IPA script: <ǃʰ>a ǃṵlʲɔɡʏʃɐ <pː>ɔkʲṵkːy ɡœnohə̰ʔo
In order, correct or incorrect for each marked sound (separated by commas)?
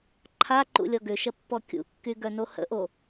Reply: correct, correct